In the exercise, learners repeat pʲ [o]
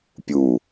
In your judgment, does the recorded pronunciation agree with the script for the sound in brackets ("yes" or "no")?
no